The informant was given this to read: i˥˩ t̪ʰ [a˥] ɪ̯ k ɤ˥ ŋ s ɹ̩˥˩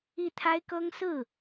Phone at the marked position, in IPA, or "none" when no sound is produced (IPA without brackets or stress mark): a˥